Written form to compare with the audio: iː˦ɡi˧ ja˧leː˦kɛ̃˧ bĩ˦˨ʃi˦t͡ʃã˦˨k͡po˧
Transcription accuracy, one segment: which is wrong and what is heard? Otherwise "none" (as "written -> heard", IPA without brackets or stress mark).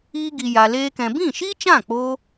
none